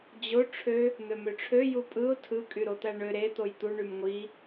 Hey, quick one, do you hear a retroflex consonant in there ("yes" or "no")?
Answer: yes